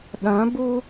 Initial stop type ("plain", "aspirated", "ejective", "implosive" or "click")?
implosive